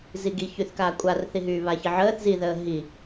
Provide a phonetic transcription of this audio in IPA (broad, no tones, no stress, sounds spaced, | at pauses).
z i ɡ i ç y θ k aː kʷʼ a r θ i ɦ yː β a ç i ʕ əː θ z i ð əː ɦ i